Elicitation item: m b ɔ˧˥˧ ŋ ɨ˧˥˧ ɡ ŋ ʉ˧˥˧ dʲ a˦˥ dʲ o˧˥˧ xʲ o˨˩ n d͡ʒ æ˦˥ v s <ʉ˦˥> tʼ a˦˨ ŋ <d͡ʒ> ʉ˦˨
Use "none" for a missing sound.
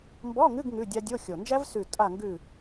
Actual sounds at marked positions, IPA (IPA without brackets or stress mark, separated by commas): ʉ˦˨, ɡ